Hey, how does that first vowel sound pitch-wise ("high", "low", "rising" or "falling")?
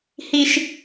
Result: high